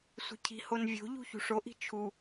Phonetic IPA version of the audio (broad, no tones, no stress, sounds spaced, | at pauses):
sʷ i̤ cʰ i̤ h o n vʲ o̤ ʎ ṳ ç ṳ ʂ o ʔ i̤ t͡ʃʰ u